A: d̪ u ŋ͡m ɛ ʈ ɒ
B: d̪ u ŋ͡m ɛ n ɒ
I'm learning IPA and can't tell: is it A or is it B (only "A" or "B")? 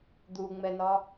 B